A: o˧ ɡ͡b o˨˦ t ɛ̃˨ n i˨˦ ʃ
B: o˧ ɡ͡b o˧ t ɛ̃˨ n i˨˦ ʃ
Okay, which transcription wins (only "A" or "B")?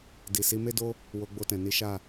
B